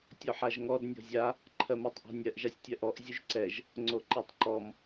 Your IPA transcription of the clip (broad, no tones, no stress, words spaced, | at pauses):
tʲɔħaʒŋɔd nʲɔ̤zʲa | ǃʰɜmotˤʔɔ̤nʲɜʔ ʒasʲtʲɜʔɔʔ zʲʉʒǀɛʒ | ŋ͡ǀoǃetˤǃɔm